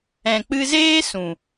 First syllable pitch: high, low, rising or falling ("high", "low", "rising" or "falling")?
low